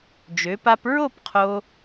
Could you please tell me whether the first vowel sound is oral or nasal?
oral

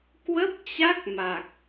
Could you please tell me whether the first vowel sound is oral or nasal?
oral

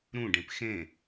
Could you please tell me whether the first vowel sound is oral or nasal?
nasal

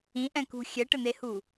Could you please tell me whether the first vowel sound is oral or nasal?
nasal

